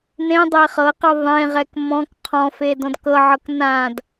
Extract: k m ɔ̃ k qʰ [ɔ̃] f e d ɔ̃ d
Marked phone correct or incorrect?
correct